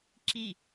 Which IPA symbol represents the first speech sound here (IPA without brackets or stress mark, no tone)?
ǁ